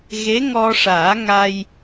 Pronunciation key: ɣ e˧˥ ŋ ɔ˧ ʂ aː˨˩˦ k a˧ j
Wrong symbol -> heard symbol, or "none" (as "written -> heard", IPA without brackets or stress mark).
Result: k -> ŋ